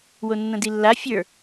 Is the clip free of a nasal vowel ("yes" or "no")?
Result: no